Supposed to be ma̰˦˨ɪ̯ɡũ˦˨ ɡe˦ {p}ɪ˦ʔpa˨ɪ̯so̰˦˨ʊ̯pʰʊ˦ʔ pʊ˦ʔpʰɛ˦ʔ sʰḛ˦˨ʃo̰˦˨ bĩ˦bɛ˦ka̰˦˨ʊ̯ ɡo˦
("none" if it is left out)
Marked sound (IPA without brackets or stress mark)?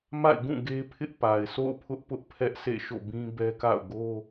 pʰ